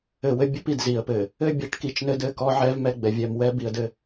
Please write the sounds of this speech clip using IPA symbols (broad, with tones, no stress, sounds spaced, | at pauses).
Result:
ɘ˨ w ɘ˦ bʲ ɘ˦ p i˨ d z i˨ ə̯ p ɘ˨ | ɘ˦ bʲ ɛ˨˦ ʈ k i˨˦ t͡ʃ n ɘ˦ d ɘ˦˨ k ɔ˦ ʕ ɛ˦ v m ɛ˦ ɡ͡b ɛ˨ vʲ ɛ˨ m w ɛ˦ b i˨ ə̯ d ɘ˦